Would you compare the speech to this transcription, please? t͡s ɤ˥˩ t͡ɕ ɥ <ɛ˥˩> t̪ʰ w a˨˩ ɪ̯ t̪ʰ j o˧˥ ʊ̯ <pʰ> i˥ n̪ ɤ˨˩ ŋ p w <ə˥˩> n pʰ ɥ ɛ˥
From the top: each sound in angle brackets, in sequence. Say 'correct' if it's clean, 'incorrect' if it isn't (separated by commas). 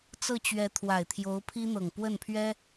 incorrect, correct, correct